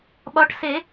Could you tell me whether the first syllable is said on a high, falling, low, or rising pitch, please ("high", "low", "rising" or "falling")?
rising